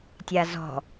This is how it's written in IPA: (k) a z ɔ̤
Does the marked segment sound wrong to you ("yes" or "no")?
yes